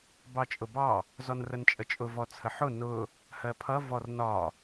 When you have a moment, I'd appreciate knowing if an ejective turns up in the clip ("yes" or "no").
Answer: yes